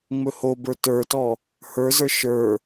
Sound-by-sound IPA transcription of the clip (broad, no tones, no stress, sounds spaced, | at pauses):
ŋ͡m ɵ h o b ə˞ t ə˞ t ɔ | h ə˞ z ə˞ ʃ ə˞